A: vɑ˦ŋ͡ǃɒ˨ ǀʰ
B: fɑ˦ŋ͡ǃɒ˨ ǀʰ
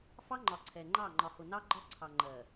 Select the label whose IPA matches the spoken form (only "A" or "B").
B